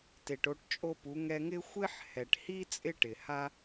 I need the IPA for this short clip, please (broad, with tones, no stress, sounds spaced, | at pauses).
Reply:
t e˨ ʈ o˧ ʈ t͡ʃʼ o˦ p u˨˦ ŋ ɛ˧ ŋ ɪ˦ xʷ ɪ˦ ħ h ɛ˨ ʈ h i˦ t͡sʼ ɪ˦ ʈ ɪ˨ h a˦